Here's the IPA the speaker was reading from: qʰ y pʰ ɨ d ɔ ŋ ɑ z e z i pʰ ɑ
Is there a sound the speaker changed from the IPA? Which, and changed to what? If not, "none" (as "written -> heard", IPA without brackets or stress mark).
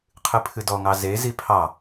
y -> ɨ